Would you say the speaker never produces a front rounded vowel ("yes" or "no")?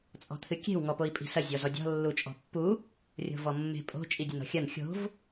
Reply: yes